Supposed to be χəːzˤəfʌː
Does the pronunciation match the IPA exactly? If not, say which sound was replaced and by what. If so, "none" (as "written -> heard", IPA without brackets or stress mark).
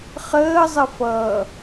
none